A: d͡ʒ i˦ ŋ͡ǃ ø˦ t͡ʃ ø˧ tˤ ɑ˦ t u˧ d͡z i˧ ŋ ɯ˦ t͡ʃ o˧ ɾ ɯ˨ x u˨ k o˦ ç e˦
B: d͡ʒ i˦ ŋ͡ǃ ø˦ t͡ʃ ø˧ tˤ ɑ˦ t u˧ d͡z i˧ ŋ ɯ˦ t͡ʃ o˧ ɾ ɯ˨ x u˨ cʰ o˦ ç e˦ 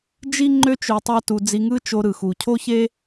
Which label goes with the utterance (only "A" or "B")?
B